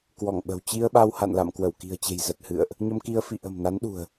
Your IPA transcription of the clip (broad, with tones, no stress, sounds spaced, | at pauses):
k w ɔ˧˩ ŋ ɓ ə̤˨˩ w t͡ɕ i˧ ə̯ ɓ a˧ w h a̰˧˨ n l a̰˧˨ m k w ə˧˩ w k i̤˨˩ ə̯ t͡ɕ e̤˨˩ j z ə˨˩ t̚ h ɨ̰˧˨ ə̯ ʔ | ɲ ə˧ m k i˧ ə̯ f ḭ˧˨ ʔ ə̤˨˩ m n a˨˦ n ɗ ṳ˨˩ ə̯